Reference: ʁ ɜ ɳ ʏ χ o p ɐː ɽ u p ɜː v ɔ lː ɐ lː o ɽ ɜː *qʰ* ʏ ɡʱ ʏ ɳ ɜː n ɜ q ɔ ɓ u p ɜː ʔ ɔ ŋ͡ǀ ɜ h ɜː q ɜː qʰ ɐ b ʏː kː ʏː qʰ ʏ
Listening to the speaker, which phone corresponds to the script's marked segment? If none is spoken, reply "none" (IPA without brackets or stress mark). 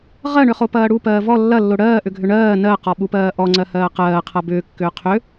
ʔ